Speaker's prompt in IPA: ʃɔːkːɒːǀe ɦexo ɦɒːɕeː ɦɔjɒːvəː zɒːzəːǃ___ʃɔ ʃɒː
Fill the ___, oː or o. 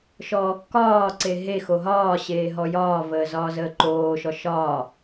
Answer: oː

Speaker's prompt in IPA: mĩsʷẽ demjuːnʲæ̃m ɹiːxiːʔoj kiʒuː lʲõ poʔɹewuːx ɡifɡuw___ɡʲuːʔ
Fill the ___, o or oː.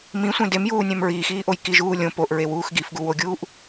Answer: o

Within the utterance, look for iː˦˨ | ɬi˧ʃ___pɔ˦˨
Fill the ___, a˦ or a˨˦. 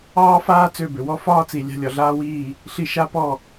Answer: a˦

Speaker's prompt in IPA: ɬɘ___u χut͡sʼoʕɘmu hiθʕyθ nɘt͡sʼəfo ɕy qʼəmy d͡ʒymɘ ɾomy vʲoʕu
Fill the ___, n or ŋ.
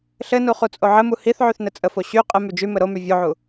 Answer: n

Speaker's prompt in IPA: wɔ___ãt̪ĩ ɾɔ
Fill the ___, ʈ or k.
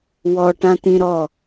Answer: ʈ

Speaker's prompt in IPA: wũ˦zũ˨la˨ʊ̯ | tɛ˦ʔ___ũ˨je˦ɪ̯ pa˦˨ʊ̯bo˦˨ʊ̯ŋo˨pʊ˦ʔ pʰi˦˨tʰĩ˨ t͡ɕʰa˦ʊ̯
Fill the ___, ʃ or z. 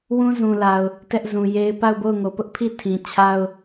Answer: z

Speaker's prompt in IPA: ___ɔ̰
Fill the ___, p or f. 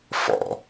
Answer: f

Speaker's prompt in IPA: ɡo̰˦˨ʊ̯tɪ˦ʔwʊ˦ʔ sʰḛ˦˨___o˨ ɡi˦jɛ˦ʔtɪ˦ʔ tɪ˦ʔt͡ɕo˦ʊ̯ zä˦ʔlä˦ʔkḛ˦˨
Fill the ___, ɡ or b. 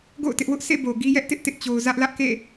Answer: b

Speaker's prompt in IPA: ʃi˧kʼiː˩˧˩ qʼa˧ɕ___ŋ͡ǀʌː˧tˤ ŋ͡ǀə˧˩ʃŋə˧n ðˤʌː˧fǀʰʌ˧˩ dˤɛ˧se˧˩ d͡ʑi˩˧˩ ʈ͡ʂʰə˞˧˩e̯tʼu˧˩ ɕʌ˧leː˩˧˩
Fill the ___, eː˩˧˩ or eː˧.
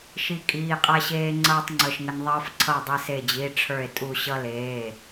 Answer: eː˧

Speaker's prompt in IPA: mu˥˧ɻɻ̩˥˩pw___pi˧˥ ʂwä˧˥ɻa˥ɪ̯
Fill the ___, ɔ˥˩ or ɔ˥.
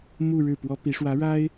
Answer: ɔ˥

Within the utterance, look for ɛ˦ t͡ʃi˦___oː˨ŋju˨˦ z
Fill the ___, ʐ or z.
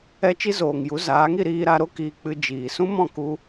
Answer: z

